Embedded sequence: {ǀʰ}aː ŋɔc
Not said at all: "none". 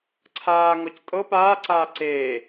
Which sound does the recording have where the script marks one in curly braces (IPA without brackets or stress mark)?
ǀʰ